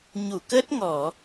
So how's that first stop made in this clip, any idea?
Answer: plain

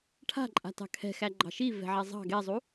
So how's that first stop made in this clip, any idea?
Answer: aspirated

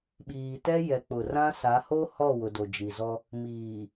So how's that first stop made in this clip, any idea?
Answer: implosive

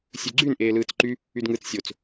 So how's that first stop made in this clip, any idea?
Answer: click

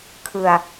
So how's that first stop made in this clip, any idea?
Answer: aspirated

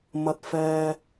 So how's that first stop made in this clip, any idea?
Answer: plain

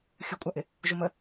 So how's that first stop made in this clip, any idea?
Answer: ejective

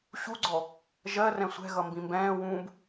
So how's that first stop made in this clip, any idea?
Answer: click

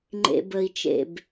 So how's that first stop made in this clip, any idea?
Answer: click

